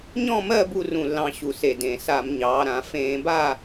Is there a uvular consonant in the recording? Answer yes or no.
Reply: no